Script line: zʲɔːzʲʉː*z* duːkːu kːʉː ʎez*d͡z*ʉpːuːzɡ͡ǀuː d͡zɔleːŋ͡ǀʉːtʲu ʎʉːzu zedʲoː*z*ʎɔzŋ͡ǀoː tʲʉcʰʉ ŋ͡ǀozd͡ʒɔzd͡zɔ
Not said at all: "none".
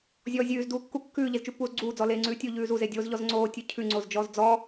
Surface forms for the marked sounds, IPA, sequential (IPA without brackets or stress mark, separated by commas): z, t͡ʃ, z